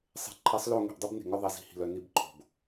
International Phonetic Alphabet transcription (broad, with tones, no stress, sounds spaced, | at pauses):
sˤ e̤˨ ǃʰ i˨˦ sˤ l o˦˨ ŋ e̤˨ ʔ dˤ ʉ˦ b n e̤˨ ŋ œ˦ ðˤ i˨ z i̤˦ h i̤˨ l œ˨ n i˦ b ǃʰ o̤˨ b